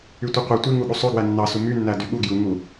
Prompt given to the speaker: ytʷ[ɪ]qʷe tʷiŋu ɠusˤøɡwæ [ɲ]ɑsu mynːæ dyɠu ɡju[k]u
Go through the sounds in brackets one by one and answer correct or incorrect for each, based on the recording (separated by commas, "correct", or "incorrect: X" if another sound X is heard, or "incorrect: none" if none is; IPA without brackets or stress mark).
incorrect: i, incorrect: nː, incorrect: ŋ